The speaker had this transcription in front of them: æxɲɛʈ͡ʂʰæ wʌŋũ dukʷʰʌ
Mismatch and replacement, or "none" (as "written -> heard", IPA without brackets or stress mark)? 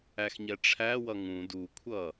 none